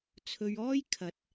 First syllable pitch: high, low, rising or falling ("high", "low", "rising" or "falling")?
low